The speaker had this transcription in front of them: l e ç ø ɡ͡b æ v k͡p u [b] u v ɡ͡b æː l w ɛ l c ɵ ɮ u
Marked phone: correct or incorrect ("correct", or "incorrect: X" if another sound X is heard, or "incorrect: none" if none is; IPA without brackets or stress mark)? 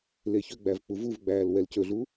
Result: incorrect: v